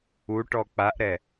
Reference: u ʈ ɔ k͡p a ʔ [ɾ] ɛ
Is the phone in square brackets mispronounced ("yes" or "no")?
no